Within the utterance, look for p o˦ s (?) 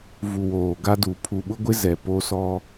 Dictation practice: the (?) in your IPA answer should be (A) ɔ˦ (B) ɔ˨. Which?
A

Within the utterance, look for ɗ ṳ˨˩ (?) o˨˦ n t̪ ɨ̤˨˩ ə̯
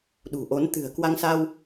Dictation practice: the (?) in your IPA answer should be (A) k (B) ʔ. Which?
B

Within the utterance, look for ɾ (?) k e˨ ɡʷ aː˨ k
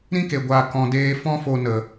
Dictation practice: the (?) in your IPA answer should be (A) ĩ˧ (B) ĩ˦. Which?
B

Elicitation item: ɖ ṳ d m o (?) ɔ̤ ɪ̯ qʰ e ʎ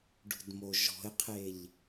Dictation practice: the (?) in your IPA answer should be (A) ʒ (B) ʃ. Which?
A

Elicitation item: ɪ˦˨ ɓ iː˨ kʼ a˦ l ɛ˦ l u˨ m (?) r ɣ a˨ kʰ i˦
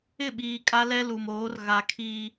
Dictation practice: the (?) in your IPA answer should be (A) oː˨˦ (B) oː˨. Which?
A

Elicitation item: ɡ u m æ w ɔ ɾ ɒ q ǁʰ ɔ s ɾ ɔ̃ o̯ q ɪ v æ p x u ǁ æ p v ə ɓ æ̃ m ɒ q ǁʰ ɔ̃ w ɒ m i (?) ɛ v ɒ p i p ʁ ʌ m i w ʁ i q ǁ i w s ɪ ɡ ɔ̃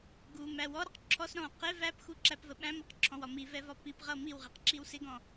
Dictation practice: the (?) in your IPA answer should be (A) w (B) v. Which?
B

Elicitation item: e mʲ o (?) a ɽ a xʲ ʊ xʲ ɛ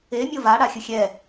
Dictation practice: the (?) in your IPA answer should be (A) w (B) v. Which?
B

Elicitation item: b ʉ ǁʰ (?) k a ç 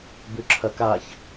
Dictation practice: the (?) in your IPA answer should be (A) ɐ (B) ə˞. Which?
A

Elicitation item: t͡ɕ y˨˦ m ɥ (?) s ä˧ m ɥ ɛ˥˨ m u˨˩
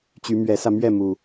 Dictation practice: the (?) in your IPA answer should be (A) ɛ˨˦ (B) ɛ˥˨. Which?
A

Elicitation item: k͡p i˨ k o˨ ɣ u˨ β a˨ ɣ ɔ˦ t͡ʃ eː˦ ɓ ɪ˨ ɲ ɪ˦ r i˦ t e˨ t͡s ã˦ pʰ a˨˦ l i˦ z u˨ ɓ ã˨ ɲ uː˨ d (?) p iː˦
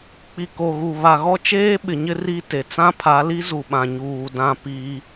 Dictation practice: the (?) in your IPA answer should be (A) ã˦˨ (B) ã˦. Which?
A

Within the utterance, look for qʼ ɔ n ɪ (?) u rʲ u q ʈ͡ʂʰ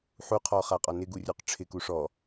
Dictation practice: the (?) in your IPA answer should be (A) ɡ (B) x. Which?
A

